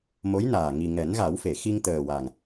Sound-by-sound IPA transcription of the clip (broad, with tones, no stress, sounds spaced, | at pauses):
m o˧˥ j n aː˨˩ ŋ i˨˩ ŋ ɛ˨˩˦ n ɣ a˨˩˦ w f e˨˩˨ x i˧ ŋ t̪ əː˨˩ w a˨˩ ŋ